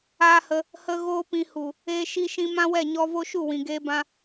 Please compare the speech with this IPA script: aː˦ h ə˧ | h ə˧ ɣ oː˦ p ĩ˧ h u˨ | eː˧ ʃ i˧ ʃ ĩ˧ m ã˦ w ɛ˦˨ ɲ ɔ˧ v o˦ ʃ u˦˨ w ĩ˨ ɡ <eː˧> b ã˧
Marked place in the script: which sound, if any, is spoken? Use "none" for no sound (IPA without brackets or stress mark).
eː˧